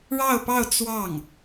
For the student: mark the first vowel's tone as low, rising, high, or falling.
falling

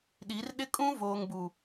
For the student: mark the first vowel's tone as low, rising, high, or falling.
rising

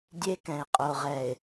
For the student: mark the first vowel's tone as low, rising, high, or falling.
high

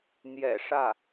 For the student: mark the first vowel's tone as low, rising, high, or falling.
low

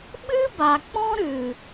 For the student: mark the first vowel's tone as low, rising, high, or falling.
high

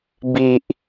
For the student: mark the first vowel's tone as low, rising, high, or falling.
low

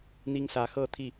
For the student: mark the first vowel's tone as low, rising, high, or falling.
high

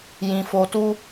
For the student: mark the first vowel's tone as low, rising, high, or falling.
low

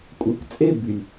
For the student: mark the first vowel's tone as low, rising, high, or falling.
low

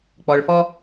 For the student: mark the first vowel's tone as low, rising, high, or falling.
low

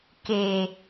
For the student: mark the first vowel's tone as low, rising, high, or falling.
low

